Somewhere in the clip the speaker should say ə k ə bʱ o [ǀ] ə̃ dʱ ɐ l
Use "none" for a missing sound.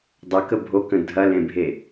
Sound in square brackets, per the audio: k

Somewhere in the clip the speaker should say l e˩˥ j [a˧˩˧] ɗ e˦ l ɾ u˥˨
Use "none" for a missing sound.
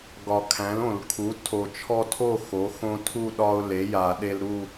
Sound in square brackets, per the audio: a˧˩˧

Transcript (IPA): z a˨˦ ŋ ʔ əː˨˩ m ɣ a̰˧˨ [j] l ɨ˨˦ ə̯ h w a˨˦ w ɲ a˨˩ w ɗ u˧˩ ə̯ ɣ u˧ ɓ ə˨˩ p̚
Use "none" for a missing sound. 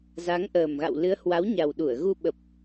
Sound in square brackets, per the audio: w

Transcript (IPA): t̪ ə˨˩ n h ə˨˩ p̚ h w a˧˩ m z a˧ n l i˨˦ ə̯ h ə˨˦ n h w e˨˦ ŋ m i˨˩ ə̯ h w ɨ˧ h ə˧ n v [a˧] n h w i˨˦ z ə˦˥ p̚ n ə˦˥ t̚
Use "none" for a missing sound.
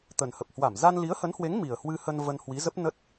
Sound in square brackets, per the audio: ə˧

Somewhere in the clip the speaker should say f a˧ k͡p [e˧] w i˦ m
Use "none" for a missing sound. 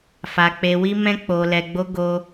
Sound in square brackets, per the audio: e˧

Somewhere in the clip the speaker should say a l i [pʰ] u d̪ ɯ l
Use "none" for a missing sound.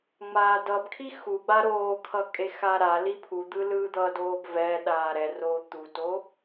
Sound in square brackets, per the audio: pʰ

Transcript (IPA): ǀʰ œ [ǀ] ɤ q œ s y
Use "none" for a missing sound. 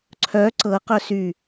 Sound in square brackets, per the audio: ǀ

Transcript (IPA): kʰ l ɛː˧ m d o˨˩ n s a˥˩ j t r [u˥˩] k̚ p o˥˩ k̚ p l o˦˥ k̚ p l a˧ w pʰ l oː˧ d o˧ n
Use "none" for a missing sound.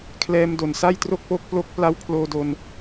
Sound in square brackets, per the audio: o˥˩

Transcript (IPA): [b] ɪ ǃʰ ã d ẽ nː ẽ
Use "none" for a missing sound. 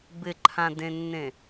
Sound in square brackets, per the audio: b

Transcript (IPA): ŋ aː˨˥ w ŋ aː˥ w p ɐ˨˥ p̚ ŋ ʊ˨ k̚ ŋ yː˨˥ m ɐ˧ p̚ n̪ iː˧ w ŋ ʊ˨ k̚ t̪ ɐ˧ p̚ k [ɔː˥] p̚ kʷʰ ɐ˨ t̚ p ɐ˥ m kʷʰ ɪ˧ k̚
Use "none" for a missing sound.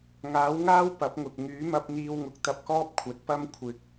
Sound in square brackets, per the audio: ɔː˥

